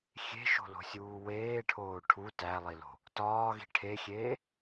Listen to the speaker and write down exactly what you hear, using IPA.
xʲ e̤ ʃ o̤ l o̤ sʲ uː w eː ʈʰ oː ʈʰ u t æ lˠ i l o̤ | t ɒː ɣ i̤ ʈʰ e xʲ eː

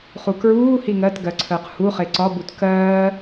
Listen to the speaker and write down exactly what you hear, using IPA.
χ u k ɹ uː h i ŋ ɜ t ɡ ɜ ǀʰ əː q h u χ e ǀ ɒ b u t k ɜː

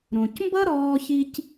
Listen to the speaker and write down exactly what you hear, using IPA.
ɾ õ˨ c m b ʌ˥ ɾ ɔː˦ ç i˥ c

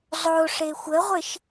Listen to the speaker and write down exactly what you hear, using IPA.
zˤ o ʂ e xʷ ə ʁʷ ɪ ʃ

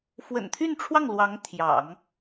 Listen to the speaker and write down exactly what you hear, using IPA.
f w ə̰˨˩ n t̪ʰ y˥˧ n ʈ͡ʂʰ w ɑ˥˩ ŋ l w ɑ˧˥ ŋ t̪ʰ j ɑ̰˨˩˦ ŋ

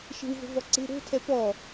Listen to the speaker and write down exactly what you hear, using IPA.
ʃ e̤ w v o̤ v ɔ ǀ e̤ ɾ o̤ tʰ ɛ p ɔ

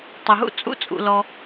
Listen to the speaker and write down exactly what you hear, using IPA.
tˤ ə˩ ɦ ṵ˥ t͡sʼ ṵ˥ t͡sʼ ṵ˩ l ɔ˩

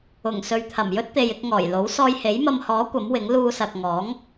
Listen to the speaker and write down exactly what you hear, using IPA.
ʊ˨˩ ŋ s ɵ˨ ɥ t̪ʰ ɐ˨˩ m j ɵ˥ t̚ t̪ e˨ j ɪ˧ k̚ ŋ ɔː˨˩ j l o˨˥ w s ɔː˧ j h e˨˥ j m ɐ˧ m h ɔː˨˥ kʷ ɐ˨˥ m w ɪ˨˥ ŋ l uː˧ s ɐ˨ k̚ ŋ ɔː˨˥ ŋ

